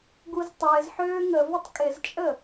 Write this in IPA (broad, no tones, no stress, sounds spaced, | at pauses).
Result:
ɡ u z tˤ ɪː z ħ øː ŋ ə v ə tˤ kʼ ɪ z t͡ʃʼ ə